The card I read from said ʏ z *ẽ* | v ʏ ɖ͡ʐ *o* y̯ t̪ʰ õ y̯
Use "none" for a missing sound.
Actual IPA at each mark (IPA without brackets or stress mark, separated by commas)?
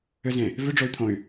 ẽ, o